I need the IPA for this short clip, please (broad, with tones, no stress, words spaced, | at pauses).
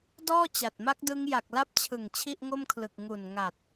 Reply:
dɔː˥˩t͡ɕa˨˩t̚ma˦˥k̚dɯ˦˥ŋ ja˨˩k̚la˦˥p̚t͡ɕʰɯ˨˩ŋ t͡ɕʰi˥˩ʔŋo˥˩mkʰlɯ˨˩k̚ ŋu˨˩n ŋa˨˩t̚